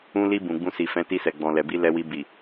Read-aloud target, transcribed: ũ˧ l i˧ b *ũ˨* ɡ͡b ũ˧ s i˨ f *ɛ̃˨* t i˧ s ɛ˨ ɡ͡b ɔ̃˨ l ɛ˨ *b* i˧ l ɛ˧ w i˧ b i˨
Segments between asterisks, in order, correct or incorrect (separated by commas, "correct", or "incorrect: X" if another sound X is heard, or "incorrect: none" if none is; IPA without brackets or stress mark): correct, incorrect: ɛ̃˨˦, correct